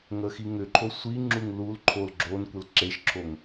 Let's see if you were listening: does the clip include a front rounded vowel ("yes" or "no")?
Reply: yes